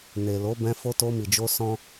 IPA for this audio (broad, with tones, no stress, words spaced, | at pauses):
ne˨lo˨˦bɛ̃˧ fo˧ to˧mi˨d͡ʒo˧ sɔ̃˦